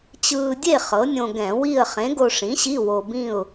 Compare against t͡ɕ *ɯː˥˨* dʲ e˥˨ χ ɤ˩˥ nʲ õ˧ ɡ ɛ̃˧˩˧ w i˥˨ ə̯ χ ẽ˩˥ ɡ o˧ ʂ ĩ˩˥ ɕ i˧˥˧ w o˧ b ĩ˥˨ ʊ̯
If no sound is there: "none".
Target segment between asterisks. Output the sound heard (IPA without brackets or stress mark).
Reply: ɯː˧